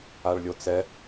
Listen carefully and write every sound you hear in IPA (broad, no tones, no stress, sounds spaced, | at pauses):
a ɭ lʲ o t͡s ɛ